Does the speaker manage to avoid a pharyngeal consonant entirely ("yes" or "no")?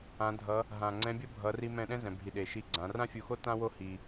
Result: yes